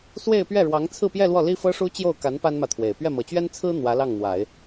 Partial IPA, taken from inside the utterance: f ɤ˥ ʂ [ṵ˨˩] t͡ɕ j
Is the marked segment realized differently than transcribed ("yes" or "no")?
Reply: yes